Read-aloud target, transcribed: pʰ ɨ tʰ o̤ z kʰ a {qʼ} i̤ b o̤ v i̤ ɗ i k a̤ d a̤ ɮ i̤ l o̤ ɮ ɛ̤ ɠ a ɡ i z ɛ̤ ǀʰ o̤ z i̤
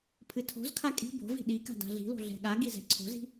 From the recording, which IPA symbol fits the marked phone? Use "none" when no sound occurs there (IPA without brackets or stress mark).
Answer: kʼ